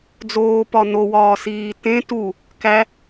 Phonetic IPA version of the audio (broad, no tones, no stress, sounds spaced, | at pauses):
d͡z oː p ɒ n o w ɒː s iː t ẽ t u | k æ